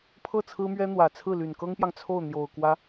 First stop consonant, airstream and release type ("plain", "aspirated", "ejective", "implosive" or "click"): aspirated